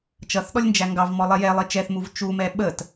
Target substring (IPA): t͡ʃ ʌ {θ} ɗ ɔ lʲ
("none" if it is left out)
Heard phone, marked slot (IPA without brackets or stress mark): θ